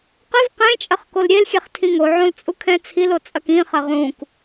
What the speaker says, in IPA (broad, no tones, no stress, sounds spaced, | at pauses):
q ɘ v q ẽ t͡ʃʼ ɐ χ k o l ɾʲ e l xʲ ɛ χ tʰ ĩ ŋ o ʕ õ l t͡sʼ u kʰ ɛ̃ t͡sʰ i l o t͡sʼ ɐ k ĩ χ ɐ ʁ ũ k